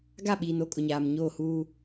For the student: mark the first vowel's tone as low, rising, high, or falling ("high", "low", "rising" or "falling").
falling